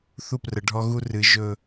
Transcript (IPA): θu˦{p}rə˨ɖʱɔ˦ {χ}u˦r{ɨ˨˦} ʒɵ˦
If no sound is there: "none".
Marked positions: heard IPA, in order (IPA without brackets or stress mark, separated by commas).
p, ɣ, ɨ˨˦